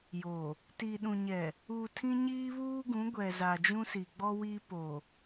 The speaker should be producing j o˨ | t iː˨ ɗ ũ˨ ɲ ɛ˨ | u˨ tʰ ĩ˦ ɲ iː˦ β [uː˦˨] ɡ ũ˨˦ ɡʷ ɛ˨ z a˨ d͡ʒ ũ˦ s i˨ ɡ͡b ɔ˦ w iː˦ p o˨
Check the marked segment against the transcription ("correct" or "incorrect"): incorrect